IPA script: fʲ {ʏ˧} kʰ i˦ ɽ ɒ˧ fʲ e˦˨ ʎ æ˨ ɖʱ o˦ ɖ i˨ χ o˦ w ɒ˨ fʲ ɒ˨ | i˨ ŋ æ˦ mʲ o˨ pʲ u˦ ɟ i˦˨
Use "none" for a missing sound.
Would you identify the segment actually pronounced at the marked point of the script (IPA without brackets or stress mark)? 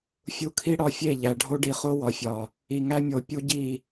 u˧